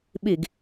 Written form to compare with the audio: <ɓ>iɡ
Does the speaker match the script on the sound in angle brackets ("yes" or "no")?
yes